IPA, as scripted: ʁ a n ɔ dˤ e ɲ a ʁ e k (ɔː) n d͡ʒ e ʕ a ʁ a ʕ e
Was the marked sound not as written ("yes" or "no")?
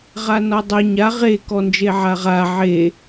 yes